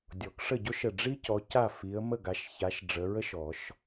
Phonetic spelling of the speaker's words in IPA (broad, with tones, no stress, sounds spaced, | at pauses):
dʲ ɔ˨˩˦ k ʂ ə˥˩ ɟ o˥ ʃ ə˧˩ ɖ͡ʐ i˥ c ɔ˨˦ c a˥˩ f i˨˦ ə̯ m ə˥˩ ɡ a˨˦ ʃ ç a˨˦ ʃ ɖ͡ʐ ə˨˦ ɹ ə˥ ʃ ɔ˨˩˦ ʃ